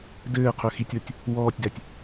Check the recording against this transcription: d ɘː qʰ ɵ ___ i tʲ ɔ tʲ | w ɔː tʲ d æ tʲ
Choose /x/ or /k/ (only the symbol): x